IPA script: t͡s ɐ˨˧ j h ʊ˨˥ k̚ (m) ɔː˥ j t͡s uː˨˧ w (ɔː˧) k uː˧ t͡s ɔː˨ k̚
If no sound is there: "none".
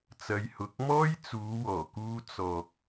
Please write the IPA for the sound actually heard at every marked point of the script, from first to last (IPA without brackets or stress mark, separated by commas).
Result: m, ɔː˨˩